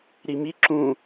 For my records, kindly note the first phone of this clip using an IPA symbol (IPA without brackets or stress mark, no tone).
ɾ